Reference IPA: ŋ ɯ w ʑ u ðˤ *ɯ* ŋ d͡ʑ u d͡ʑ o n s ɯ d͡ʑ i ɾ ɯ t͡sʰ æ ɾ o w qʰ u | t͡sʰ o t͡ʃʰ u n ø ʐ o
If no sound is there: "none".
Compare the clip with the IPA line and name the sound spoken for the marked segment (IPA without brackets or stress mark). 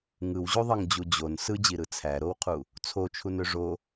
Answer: ɯ